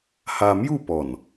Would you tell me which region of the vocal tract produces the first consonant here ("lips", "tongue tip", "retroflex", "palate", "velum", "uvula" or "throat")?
throat